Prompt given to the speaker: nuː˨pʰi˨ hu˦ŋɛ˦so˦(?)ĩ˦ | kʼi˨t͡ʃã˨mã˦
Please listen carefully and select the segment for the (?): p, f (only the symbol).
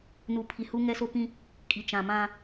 p